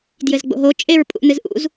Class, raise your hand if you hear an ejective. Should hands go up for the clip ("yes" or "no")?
yes